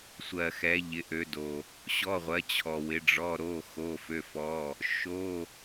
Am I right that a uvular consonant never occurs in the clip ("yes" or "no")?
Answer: no